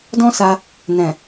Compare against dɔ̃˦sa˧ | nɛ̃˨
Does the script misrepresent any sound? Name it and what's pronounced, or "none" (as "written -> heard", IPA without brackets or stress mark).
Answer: none